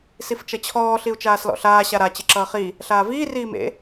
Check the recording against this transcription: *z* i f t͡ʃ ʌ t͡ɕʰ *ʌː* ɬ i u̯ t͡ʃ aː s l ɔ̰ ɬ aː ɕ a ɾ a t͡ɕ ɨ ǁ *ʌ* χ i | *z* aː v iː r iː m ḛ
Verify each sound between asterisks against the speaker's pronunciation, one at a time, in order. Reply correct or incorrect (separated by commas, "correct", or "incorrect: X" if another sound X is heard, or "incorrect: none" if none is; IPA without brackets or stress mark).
incorrect: s, incorrect: ɔː, incorrect: ʌː, incorrect: ɬ